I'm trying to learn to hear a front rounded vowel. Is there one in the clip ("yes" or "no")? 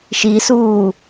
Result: no